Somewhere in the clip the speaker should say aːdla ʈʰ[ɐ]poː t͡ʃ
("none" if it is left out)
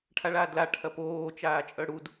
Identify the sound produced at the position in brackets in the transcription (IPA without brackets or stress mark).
ɐ